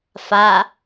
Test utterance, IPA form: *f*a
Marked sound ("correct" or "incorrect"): correct